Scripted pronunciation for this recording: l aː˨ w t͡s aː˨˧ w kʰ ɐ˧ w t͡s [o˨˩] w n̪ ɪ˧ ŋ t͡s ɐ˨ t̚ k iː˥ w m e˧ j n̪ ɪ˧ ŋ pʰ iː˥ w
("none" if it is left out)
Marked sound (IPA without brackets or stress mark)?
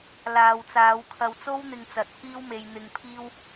o˥